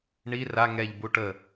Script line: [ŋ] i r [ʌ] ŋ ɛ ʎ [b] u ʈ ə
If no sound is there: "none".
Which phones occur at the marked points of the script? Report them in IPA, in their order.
ɳ, a, b

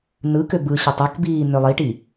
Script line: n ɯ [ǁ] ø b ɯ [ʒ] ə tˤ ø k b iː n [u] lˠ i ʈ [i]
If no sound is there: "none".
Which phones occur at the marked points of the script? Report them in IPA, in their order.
k, ɕ, ø, i

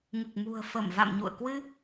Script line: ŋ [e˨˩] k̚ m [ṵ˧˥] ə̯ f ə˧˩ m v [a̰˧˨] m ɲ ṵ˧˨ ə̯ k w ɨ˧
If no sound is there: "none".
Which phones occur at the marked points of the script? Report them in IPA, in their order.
ɨ˨˩, ṳ˨˩, a̰˧˨

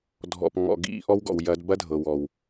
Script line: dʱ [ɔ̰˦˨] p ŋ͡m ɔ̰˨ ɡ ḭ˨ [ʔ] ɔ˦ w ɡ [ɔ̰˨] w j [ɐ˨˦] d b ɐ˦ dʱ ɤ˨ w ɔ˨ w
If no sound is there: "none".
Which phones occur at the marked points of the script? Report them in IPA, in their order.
ɔ̰˨, ʔ, ɔ̰˨, ɐ˨˦

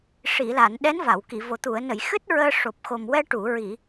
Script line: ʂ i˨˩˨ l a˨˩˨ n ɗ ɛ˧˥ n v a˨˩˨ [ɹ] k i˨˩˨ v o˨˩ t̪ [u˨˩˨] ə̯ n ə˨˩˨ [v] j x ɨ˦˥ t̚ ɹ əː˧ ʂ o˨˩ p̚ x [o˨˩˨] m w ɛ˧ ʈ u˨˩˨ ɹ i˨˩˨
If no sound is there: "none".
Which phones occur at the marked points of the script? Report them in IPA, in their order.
w, u˨˩˨, none, o˨˩

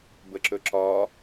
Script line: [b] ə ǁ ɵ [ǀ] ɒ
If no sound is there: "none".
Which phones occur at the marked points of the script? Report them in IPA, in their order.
b, ǁ

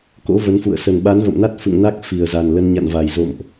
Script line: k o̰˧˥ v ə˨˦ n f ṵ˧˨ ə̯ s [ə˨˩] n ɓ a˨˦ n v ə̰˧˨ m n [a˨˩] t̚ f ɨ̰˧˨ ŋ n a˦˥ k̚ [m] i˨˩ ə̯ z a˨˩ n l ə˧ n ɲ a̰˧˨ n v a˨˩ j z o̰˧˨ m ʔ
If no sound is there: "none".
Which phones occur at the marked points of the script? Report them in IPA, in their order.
ə˨˩, a˦˥, f

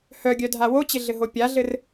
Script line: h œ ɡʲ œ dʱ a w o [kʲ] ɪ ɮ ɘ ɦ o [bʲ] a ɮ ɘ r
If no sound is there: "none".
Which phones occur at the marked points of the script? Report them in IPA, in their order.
t͡ɕ, pʲ

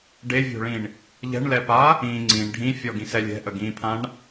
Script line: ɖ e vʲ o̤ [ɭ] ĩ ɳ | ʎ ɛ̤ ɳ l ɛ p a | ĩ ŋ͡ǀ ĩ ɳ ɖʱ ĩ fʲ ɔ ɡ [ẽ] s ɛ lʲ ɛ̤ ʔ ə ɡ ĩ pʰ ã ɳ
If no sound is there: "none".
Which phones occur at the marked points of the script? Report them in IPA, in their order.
ɭ, ĩ

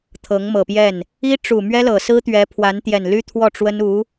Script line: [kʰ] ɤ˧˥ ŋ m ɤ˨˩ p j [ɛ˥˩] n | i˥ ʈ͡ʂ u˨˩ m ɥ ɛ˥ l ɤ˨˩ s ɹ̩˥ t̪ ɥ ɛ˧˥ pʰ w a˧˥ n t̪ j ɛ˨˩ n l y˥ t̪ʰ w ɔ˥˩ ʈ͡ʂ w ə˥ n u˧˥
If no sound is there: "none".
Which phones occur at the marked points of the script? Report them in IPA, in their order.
t̪ʰ, ɛ˥˩

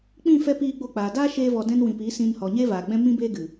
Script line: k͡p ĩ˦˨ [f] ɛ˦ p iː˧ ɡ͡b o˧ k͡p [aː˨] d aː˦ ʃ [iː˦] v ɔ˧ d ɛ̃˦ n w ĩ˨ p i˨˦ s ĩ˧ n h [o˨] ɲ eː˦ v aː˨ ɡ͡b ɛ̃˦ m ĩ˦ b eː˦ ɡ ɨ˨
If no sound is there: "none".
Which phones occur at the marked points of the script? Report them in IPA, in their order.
f, aː˨, eː˦, ɔ˨

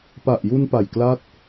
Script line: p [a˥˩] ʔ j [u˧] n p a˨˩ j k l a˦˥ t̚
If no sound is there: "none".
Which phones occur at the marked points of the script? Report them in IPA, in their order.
a˨˩, u˧

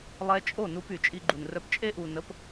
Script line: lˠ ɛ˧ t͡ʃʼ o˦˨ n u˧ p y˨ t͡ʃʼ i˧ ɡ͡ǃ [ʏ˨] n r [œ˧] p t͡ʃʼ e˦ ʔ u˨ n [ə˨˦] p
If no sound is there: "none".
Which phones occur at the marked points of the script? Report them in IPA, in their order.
u˨, œ˧, ə˨˦

